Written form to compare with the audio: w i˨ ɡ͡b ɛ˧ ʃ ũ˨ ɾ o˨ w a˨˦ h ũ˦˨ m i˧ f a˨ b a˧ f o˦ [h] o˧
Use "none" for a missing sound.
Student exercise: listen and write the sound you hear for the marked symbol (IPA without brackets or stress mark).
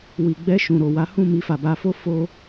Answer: f